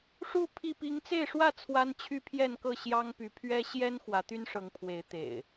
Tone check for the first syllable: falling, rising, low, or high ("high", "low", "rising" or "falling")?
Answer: falling